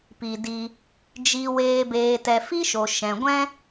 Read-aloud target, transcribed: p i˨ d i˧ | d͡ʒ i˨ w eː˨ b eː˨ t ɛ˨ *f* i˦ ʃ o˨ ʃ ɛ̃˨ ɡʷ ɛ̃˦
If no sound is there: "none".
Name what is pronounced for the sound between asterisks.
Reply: f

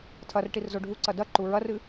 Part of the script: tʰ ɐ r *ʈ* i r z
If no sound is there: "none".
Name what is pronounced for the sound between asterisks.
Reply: ʈ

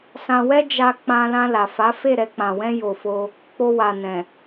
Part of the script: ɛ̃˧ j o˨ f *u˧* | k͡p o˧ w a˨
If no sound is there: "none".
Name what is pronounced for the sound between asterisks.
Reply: o˧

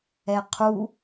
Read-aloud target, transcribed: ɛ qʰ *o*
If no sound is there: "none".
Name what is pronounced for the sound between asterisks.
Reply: u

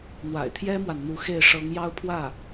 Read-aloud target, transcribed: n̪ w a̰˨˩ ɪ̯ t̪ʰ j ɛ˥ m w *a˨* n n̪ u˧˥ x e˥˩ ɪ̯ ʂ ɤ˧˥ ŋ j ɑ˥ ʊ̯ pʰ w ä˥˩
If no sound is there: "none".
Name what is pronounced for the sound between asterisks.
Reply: a˨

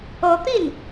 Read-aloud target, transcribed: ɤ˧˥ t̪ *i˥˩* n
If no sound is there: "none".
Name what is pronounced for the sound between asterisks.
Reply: i˥˩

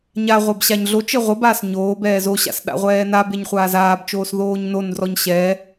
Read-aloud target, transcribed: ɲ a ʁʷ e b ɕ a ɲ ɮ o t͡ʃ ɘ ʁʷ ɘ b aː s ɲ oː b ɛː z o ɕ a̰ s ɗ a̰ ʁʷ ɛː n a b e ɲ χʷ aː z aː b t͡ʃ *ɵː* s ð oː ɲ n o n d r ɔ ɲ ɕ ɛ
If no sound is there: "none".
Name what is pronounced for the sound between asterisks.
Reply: oː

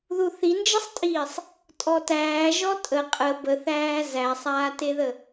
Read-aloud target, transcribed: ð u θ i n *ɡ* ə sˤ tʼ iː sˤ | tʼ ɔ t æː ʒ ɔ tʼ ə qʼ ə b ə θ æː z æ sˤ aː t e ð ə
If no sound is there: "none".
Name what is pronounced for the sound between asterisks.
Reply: d͡ʒ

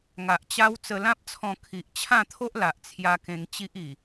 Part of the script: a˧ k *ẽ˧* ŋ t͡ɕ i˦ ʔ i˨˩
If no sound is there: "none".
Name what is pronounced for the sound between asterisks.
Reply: ẽ˧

